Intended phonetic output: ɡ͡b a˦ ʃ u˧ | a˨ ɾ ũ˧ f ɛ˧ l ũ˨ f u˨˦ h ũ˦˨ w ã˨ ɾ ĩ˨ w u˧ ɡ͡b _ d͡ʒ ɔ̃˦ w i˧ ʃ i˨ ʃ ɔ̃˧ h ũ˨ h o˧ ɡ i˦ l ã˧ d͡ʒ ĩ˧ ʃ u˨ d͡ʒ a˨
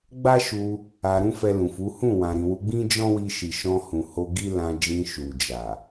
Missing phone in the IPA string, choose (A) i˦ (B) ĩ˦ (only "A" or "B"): B